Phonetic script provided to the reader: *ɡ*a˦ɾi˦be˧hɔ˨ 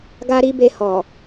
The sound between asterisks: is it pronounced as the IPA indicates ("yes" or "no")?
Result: yes